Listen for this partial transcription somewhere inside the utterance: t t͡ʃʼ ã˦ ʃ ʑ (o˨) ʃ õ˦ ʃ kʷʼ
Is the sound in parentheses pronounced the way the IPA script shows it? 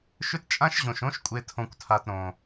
no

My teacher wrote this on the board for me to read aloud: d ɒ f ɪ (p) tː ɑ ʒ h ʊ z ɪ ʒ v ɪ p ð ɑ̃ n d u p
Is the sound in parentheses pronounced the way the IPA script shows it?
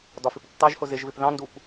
yes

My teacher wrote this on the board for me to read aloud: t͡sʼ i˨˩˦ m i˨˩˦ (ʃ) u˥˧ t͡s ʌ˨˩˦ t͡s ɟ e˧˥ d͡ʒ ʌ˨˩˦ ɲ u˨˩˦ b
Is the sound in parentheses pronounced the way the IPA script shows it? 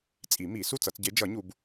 no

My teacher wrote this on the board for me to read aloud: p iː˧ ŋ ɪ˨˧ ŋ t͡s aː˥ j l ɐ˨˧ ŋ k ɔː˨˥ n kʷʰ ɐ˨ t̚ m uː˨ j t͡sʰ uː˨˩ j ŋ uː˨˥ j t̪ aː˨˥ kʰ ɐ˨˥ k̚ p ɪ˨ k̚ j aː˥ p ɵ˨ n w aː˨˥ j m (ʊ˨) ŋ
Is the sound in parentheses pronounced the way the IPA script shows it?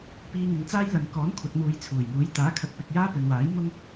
no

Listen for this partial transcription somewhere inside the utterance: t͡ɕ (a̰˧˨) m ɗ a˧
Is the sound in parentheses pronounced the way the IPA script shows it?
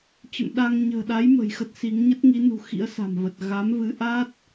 no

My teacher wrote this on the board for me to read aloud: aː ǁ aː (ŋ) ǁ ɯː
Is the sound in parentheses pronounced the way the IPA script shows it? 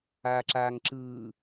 yes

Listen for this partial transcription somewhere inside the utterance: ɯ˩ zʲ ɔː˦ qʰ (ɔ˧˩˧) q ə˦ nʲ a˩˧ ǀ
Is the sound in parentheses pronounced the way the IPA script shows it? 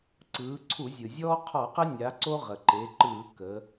yes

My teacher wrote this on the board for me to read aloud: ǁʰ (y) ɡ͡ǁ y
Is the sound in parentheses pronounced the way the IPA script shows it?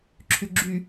yes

